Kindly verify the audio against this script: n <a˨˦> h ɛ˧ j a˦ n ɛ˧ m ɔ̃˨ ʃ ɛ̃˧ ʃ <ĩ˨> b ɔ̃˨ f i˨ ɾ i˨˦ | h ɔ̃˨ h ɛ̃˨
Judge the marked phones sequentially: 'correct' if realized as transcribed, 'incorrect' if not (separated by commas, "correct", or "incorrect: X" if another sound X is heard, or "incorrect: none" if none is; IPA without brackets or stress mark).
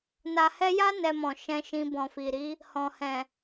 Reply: incorrect: a˨, incorrect: ĩ˧